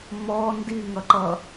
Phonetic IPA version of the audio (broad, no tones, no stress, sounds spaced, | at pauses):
m ɔ n d i ŋ ʌ ǃ ʌ